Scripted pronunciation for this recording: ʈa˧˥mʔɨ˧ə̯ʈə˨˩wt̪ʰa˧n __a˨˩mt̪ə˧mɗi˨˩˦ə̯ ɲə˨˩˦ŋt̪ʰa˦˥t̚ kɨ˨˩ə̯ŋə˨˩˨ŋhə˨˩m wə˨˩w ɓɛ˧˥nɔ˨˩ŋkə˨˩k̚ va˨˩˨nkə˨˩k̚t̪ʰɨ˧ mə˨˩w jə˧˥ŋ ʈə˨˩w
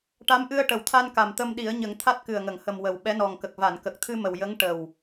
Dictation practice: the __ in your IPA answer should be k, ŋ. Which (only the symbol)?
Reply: k